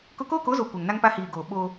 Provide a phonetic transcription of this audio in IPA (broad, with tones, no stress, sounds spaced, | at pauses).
k ʊ˦ k oː˦ k o˨˦ z o˨ kʷ ɛ˨ ŋ n a˦ ŋ p a˦ h iː˨ ɡ oː˨ ɓ oː˦